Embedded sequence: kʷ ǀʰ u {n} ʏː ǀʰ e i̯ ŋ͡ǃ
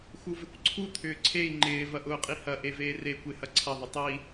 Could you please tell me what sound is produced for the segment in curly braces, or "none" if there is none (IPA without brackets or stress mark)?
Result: t̪ʰ